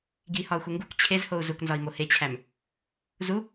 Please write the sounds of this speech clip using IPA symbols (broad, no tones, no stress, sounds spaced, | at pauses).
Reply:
ɡ i h ɒ u̯ x u ŋ ɡ u k t͡ɕʰ e z h o u̯ z u k n z ɒ i̯ m o h e t͡ɕʰ æ m | z u